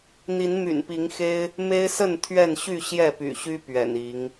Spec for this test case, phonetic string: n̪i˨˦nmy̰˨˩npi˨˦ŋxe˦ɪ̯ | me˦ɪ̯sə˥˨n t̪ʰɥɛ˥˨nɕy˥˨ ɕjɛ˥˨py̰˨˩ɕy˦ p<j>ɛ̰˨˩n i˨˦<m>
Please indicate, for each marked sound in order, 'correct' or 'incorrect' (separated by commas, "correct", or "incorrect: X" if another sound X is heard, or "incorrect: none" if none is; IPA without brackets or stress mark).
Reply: incorrect: ɥ, incorrect: ŋ